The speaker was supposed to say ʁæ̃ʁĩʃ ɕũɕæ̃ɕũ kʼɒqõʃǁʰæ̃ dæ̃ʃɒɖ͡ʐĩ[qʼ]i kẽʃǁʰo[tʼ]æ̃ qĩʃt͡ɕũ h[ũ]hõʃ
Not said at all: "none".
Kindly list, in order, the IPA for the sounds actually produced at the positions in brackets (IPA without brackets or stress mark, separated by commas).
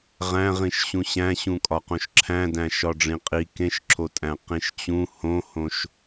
qʼ, tʼ, õ